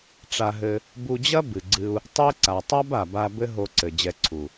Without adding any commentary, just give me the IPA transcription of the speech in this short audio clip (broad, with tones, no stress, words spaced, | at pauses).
ʈ͡ʂa˧ɦɘ˧ | bu˧d͡ʑɐ˦ bɨ˨ɡ͡ǀɨ˧u̯ | tˤe˦ ǀa˨tˤa˦ba˨ba˧ bɘ˦ɦo˧ǀɘ˨ d͡ʑɛ˧ǀʰu˨